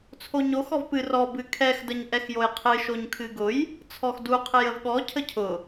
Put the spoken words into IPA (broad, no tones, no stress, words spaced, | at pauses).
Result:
t͡sʰoɲox ɔvpɨ rɔ bɨkʰɛx dəɲʔɛxjojqʰɨ ʃoɲkʰɨɡʊj | t͡sʰɔxdu qʰɨjəvɠɔ cʰəcʰʊ